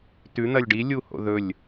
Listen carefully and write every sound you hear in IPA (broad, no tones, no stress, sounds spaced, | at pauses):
t ʉ n̪ ɐ lʲ ɖ i lʲ u h o̰ ð ɵ lʲ